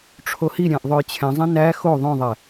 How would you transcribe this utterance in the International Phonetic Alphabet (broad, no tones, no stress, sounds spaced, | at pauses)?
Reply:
ʈ͡ʂʰ o h i ɾʲ æ̃ ʔ ðˤ ø j t͡ɕʰ ɛ̃ zˤ ĩ n æ x o ðˤ œ̃ ðˤ ɛ